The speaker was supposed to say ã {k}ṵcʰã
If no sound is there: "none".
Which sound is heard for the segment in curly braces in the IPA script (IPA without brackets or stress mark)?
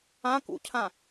k